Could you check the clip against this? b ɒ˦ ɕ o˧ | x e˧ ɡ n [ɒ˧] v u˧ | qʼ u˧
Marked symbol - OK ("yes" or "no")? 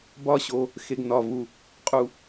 yes